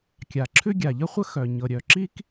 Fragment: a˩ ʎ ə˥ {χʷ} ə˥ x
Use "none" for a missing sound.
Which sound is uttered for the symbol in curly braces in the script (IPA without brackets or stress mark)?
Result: χʷ